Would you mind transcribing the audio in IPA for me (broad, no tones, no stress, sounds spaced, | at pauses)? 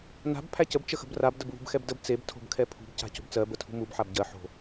n a̤ b pʰ æ c ə b t͡ʃ ə x ə̤ b r a b d ə b β ṳ b x ɛ b d ə b t͡s e b tʰ o̤ b kʰ ɛ pʰ ṳ b c a̤ c o̤ b t͡s ɜ b ə tʰ ṳ m u b ħ a b ɟ ɜ ħ o̤